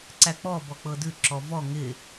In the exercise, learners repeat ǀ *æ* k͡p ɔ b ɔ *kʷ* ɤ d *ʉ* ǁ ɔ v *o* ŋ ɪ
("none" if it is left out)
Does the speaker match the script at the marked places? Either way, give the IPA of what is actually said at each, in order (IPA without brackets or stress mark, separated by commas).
æ, k͡p, ʉ, ɔ